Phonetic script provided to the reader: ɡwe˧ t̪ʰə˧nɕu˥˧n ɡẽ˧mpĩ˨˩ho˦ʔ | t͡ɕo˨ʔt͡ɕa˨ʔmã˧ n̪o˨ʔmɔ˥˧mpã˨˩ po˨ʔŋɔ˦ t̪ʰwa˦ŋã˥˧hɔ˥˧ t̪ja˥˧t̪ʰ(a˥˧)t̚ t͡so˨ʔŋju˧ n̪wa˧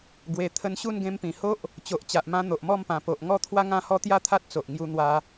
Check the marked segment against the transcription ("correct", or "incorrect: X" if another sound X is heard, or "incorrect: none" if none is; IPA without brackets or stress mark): incorrect: a˦